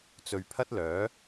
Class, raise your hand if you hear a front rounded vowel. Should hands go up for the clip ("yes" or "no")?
yes